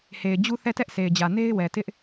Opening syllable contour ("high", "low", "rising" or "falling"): low